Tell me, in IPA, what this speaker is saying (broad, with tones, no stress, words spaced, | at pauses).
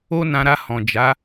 o˦nã˧ɾa˧ hɔ̃˨d͡ʒa˨˦